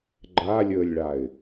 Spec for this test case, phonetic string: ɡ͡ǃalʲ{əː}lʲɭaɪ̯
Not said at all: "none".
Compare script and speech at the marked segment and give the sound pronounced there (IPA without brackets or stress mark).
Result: əː